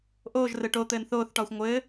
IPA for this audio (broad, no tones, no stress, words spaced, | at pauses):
ʔoːʒ rɘʈot̪ɘːn θoːθʈɒːxʷ ŋʷɘː